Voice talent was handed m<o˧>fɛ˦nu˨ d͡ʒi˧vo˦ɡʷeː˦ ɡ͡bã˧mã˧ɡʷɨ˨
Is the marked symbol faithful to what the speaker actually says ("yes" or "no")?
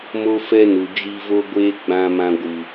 no